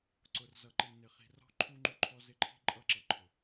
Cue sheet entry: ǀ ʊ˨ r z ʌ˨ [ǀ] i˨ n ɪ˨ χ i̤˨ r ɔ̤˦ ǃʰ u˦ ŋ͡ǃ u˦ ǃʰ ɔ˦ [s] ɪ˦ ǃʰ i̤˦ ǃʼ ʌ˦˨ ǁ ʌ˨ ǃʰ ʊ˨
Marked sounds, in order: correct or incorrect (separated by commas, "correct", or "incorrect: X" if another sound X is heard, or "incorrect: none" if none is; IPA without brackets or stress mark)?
incorrect: ǃ, incorrect: z